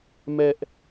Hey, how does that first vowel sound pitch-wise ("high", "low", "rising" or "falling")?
high